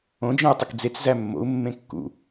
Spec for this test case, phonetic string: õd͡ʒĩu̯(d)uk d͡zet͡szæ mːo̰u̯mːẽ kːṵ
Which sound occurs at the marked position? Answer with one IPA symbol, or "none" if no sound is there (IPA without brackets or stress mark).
tˤ